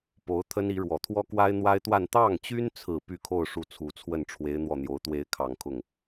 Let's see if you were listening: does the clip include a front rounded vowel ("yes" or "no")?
yes